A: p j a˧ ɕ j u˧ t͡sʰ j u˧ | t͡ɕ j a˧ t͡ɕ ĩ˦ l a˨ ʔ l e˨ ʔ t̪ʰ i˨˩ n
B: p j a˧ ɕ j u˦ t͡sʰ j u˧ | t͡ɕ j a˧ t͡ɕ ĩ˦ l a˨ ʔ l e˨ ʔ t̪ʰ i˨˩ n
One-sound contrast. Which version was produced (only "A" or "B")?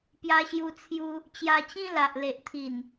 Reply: A